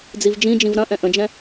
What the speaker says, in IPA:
d͡zivd͡ʒĩd͡ʒĩv ɾɐ̃ʔɛ̃ ʔə̃d͡ʒɛ̃

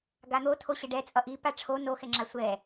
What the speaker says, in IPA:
ɡan̪o tʰoɕɛɖɛ t͡sʼʌʔi paʈ͡ʂʰo no xɛŋ͡ǁasʷɛ

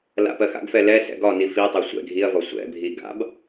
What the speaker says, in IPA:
la̰pɜxa̰ɡfɛ lɛ sɛ̰ɡɒni fitˤɛ sʷɛ̰ ɡʱiɐ̯vɒ sʷɛ̰bʱi ɡa̰b

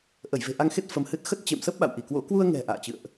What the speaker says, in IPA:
ʔə˧˩jve̤˨˩ʔa˧ŋxe˦˥t̚ fə˧mhɨ˦˥t̚ xə˦˥t̚t͡ɕḛ˧˨msə˦˥p̚ ɓa̰˧˨wʔi˧˩kwo̰˧˥ kwu˧ə̯ŋɛ̤˨˩ ʔa̰ː˧˨t͡ɕɨ̰˧˨ə̯ʔ

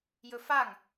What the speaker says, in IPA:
jɵfaŋ

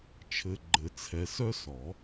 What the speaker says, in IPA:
t͡ʃʰɘ˨ɡ͡ǃɘ˨˩˦ t͡sʰɛ˨sœ˦sɔ˨˩˦

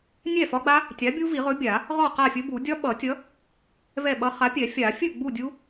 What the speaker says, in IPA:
nʲɛ˥˨fɒ˦˥ɡ͡ba˦˥ | tʲa˨˥ bʲu˦˥vi˨˩˦ʁɵ˨˥ bʲa˨˩˦ | ʁɔ˥˨qa˥˨fʲɵ˦˥bu˨˩˦ dʲɒ˦˥ɓʌ˨˩˦tʲʌ˨˥ | vɛ˥˨ɓʌ˦˥ χa˨˥pʲɛ˨˩˦fʲa˨˩˦ fʲɵ˥˨ ɡ͡bu˥˨dʲu˦˥

